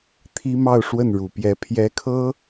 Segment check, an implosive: absent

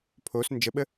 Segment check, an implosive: present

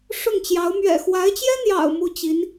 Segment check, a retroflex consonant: present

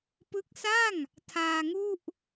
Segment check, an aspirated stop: present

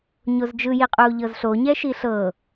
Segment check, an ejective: present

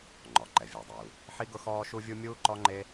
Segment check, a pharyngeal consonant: present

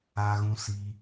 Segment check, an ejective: absent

